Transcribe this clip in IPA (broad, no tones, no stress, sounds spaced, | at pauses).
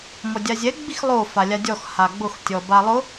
m ɔ dʲ a zʲ ɛ ɡ͡b i x lˠ o f a lʲ a dʲ ɔ x h a ɡ͡b ʊ x tʲ ɔ b a lˠ ʊ